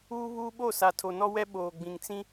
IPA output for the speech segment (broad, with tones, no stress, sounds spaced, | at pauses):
uː˦ β uː˦ ɓ o˦˨ s a˨ tʰ o˨ n ɔ˦ w ɛ˦ ɓ oː˨ ɡ͡b ĩ˨ ŋ t͡s ĩ˦